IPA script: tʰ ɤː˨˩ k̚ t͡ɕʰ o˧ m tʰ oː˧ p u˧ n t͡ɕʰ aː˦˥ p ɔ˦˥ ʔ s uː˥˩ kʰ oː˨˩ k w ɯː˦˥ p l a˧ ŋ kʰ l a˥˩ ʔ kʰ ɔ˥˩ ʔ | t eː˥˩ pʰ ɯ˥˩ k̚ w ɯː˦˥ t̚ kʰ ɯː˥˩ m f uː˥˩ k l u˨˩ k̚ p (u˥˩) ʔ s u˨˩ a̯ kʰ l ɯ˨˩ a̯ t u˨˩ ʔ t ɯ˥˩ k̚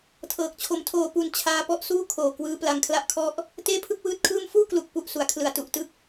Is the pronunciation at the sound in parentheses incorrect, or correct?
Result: incorrect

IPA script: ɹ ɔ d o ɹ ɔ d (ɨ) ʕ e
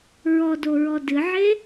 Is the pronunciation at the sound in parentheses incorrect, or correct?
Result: correct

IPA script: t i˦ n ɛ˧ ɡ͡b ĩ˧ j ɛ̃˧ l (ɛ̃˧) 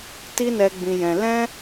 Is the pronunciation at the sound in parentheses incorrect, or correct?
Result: incorrect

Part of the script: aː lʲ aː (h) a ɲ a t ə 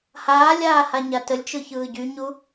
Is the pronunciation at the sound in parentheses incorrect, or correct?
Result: correct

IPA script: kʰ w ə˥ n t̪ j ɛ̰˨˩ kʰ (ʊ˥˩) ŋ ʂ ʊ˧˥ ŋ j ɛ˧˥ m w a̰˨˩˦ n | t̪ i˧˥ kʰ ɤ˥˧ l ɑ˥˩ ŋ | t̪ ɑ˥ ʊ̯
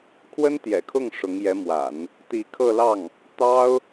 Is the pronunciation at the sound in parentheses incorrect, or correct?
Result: correct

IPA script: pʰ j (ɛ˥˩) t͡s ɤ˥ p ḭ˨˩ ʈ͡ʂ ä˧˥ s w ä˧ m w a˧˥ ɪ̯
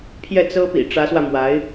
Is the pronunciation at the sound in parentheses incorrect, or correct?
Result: correct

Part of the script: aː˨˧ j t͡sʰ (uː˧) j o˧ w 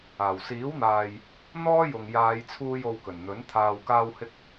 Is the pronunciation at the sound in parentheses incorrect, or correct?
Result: correct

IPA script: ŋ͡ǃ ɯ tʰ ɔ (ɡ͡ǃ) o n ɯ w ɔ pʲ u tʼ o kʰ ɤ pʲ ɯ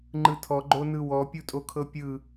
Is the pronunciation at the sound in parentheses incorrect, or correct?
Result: correct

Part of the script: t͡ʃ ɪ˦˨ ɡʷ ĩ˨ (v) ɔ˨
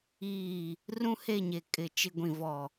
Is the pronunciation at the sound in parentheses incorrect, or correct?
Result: correct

